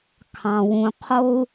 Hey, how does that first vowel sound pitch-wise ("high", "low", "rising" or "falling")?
low